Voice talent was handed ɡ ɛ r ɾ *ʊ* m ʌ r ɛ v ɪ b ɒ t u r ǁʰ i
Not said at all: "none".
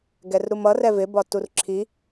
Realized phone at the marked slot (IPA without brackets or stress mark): u